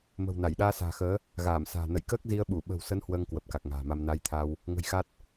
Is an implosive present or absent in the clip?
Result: present